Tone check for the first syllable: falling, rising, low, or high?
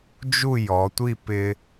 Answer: falling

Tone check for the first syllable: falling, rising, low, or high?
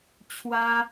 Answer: high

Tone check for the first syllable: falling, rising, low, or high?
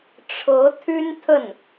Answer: rising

